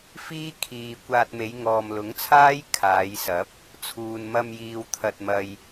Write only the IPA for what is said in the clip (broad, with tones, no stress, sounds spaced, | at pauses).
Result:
f iː˥ kʰ iː˨ kʷ aː˧ t̚ m e˨˧ j ŋ ɔː˨ m l ʊ˨˥ ŋ t͡sʰ aː˥ j kʰ aː˨˧ j s ɐ˨˥ p̚ | t͡sʰ uː˨ n m ɐ˧ m j iː˨ w t̪ʰ ɐ˧ t̚ m ɐ˨ j